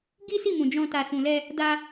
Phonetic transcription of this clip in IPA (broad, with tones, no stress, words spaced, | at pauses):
ɡi˦si˦˨mũ˨ d͡ʒɔ̃˧ ta˨sũ˨lɛ˧ | da˧